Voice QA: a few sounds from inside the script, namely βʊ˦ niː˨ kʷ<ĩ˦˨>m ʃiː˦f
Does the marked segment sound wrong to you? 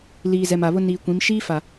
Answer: yes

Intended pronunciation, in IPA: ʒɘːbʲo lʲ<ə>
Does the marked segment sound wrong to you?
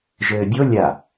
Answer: yes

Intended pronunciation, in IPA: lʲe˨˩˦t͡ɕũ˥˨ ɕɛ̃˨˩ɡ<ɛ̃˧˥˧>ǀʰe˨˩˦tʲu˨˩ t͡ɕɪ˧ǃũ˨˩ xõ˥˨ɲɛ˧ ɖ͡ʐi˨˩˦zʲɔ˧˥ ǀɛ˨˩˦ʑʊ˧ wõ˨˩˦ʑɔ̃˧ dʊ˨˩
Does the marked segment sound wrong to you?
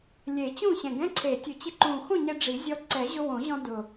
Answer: no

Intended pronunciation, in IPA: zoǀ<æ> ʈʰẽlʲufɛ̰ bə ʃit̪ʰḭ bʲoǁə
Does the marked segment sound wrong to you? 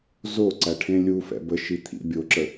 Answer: no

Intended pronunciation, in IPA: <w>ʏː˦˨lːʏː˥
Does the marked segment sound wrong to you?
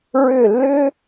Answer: yes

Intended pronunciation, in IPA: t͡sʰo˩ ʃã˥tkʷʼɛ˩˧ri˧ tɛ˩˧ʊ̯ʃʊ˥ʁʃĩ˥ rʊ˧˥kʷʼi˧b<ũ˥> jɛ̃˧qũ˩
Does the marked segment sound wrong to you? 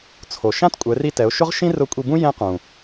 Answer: no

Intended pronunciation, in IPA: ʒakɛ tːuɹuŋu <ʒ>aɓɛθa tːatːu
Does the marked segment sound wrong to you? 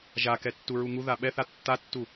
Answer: yes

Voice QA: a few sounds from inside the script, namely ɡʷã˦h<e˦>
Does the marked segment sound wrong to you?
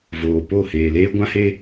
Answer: no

